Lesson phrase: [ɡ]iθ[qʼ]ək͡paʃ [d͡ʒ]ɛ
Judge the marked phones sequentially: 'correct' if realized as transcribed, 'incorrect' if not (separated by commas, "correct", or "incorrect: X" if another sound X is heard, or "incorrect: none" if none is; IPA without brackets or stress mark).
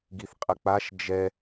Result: correct, correct, correct